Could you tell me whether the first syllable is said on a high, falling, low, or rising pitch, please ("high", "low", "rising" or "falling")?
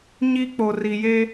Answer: high